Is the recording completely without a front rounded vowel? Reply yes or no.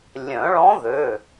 no